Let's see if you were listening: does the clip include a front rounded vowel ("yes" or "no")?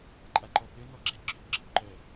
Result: yes